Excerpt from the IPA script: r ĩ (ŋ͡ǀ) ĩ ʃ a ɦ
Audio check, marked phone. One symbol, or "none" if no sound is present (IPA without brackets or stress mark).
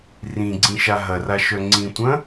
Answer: ɡ͡ǀ